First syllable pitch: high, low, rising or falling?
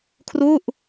falling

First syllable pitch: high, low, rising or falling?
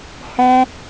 high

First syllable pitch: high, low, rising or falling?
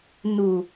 low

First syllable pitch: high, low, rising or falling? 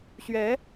rising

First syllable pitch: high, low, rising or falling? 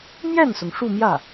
falling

